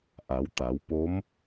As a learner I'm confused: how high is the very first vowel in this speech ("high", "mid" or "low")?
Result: low